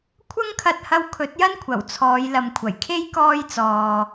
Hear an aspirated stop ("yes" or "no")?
yes